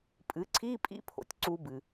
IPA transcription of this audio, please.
pʼɨ˩˥ǀʰi˧˥˧pʼḭ˦˥pʰo̰˨tʲ ǀu˦˥bɨ˨

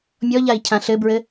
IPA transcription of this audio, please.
mʲɔʎai̯cʰã ɬɘbɹɘ

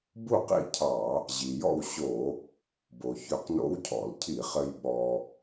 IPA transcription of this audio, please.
bu˥˩qḭ˥˩cʰɑ˧˩˧ | ʑi˩jɔ̰˥˩wɕo˧˩˧ | bo˩çɵ˧˩˧qno̰˧˥wcʰɔ̰˧˩˧l cʰi˧˩˧χɘ˧j ɓɔ˧

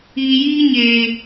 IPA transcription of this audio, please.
iː˨jiː˦ɲeː˨

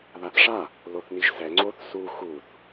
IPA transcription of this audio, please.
ðaθʂa | loθniʒsɛ ŋ͡ǀoθ su xuθ

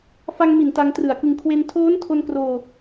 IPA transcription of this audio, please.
fa˧ŋmi˨˩n ta˧ŋtrɯ˨˩a̯kɯ˧ŋ kʰwe˧ntʰoː˦˥n tʰo˧nkroː˧

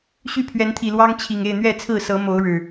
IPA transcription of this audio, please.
ɕy˥˨pʰɥɛ˨˦nt̪ʰi˨˩lwɑ˦ŋ t͡ɕʰi˨˩ŋ e˥˨ɪ̯n̪ɥɛ˥˨t͡sʰɹ̩˥˨ sɤ˨˦mo˨˦ʊ̯ ɻɻ̩˨˩

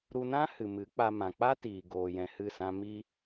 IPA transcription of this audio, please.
ɾu˧nã˦ hɨ˨mɨ˨˦k͡pa˧ mã˨k͡pa˦tiː˨ ɡoː˨ jɛ̃˧hɨ˦˨sã˦ mi˦

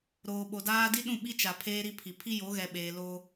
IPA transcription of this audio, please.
ɾoː˨ɓo˨daː˦ di˦ɗũ˦˨ ɓi˦t͡ʃa˨ pʰeː˦ɾi˦pʰi˨ pʰi˦jo˨˦ɣɛ˨ɓeː˨ lo˦

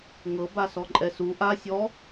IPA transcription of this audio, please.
ŋɤ basɔǃʼɛsu ʔa sʲɔ

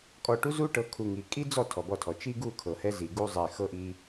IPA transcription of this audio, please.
kʼɔ˨ʈu˦zu˦ ʈɤ˨˦kʰu˨ ŋi˨ kʼi˦d͡zɔ˦˨ tʰɔ˨bɔ˦˨tʰɔ˨ t͡ʃi˦ɡu˦˨ kʰɤ˨hɛ˦zi˨ɡu˦ zˤɛ˨xɤ˦ʔi˦

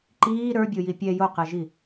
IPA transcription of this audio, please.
ǃiː ɾə˞bʲoji pʲɛ joqɛʒi

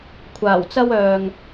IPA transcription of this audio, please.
kʷʰaː˨˩wt͡sɐ˥w œː˨ŋ

